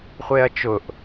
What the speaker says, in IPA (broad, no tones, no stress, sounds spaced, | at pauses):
χʷ e ɐ̯ t͡ʃ ʊ ʔ